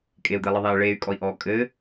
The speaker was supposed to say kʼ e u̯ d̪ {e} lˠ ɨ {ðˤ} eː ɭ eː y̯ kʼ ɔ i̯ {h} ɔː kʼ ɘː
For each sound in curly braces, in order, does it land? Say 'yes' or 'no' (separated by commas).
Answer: yes, yes, no